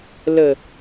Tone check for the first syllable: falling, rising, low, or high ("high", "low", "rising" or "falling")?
low